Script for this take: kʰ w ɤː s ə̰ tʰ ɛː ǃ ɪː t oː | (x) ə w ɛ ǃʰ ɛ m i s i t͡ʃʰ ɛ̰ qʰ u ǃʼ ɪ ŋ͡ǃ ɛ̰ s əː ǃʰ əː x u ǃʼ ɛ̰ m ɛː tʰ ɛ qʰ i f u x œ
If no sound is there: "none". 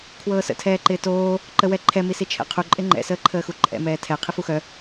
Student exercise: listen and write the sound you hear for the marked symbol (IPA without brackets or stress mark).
ǃ